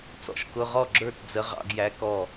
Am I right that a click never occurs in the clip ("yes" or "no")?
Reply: no